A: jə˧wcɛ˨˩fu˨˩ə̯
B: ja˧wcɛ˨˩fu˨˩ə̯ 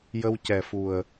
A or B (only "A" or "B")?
A